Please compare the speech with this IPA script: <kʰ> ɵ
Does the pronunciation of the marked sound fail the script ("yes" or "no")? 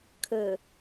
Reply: no